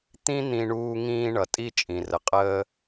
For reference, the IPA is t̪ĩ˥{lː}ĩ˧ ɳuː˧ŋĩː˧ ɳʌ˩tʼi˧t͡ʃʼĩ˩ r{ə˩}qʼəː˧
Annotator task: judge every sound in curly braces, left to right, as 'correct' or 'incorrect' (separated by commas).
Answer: incorrect, correct